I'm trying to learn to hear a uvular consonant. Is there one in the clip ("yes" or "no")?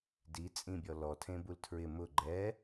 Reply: no